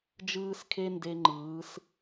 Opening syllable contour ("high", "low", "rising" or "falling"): high